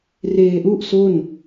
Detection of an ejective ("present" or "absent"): absent